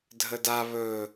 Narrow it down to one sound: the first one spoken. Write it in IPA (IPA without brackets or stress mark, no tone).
dʱ